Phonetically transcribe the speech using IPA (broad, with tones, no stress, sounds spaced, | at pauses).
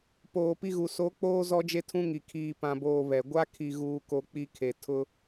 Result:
p oː˨ p i˦ ɣ u˨ s o˨˦ k͡p oː˦ z ɔ˦ d͡ʒ e˦ tʰ ũ˦ ŋ i˨ kʰ iː˨ p ã˨ b oː˨ β ɛ˨ ɡʷ a˦ kʰ i˨ ɣ uː˨ k o˨ k͡p i˦ kʰ e˨ tʰ ʊ˦